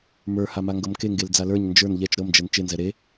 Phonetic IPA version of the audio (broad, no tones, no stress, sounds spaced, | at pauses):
m ə˞ h a m a ŋ ɡ ɤ m k e ŋ ɡ e l d͡z a l ə˞ ɲ n d͡ʒ ə˞ n ʎ ɛ t͡ʃ ɾ ɤ m d͡ʒ ɛ n t͡ʃ e n z ɛ ɾ e